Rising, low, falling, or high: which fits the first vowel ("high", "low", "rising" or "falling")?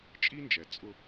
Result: high